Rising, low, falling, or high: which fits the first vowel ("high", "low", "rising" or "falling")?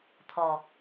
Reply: low